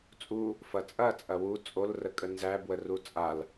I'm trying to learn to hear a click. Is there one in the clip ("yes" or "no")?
no